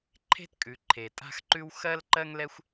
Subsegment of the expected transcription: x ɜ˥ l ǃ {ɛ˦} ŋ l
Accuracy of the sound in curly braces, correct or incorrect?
incorrect